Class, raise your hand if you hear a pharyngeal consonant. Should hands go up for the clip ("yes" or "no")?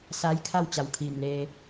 no